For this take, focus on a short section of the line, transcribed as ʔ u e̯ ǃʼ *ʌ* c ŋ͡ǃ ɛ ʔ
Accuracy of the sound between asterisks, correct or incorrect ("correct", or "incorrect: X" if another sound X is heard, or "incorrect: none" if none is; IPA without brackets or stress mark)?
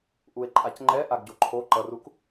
incorrect: a